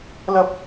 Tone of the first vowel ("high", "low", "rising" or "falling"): high